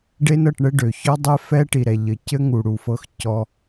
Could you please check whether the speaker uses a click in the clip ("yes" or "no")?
no